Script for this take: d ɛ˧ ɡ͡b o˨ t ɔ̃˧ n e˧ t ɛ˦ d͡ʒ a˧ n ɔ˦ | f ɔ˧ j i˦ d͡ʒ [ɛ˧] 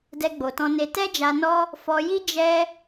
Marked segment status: incorrect: ɛ˦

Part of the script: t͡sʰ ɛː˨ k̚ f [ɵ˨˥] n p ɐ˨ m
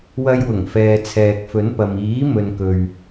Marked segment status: correct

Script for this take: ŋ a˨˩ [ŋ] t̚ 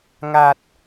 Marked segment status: incorrect: none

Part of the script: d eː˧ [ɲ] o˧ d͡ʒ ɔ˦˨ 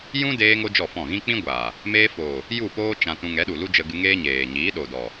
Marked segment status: incorrect: ŋ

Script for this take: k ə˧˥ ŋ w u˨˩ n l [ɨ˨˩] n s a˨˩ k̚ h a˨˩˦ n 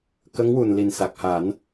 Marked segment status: incorrect: i˨˩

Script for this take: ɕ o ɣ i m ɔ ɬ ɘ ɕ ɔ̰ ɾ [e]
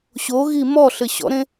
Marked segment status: incorrect: ẽ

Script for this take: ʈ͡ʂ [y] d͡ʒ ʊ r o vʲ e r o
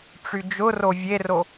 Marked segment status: correct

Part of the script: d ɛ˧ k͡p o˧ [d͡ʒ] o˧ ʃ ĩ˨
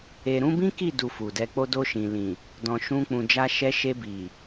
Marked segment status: incorrect: d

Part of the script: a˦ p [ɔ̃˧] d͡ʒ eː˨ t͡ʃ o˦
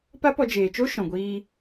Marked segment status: incorrect: ɔ˧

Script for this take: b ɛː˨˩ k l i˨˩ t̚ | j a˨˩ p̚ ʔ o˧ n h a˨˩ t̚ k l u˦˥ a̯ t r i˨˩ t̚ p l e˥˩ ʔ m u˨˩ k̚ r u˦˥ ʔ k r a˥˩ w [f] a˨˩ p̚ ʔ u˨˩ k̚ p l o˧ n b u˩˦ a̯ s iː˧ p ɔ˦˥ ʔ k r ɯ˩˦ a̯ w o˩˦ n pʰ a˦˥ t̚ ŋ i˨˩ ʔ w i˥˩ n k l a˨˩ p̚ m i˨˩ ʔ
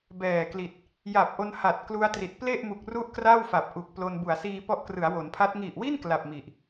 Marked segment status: correct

